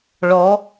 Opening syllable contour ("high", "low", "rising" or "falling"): rising